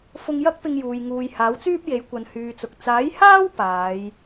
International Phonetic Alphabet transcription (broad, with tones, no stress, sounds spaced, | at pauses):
f ʊ˧ ŋ j ɐ˥ k̚ p ɪ˧ ŋ j uː˨ j ŋ uː˨ j h aː˨˥ w t͡s yː˥ p̚ j e˨˥ j kʷ ɐ˨ n h yː˨ t͡s ʊ˨ k̚ t͡s aː˨˥ j h aː˥ w p aː˨˧ j